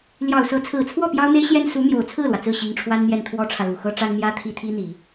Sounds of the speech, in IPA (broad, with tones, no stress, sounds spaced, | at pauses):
l j ɑ˨˩ ʊ̯ s ɤ˧˥ t͡sʰ ɹ̩˨˩ t͡sʰ w ɔ˥˩ p j ɑ˥ ʊ̯ n̪ e˥ ɪ̯ ɕ j ɛ˥ n s u˧˥ n̪ j o˨˩ ʊ̯ t͡sʰ ɹ̩˥˩ l w ä˩ t͡s ɹ̩˥˩ ɕ i˧˥ ŋ ʈ͡ʂʰ w a˥ n n̪ j ɛ˥˩ n t̪ʰ w ɔ˥ ʈ͡ʂʰ ä˨ l u˨˩ x ɤ˥ ʈ͡ʂ a˥ n n̪ j ä˥ t̪ʰ i˥ t̪ʰ i˥ n̪ i˨˩˦